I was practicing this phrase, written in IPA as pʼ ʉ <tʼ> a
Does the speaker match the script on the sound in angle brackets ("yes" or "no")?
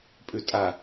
yes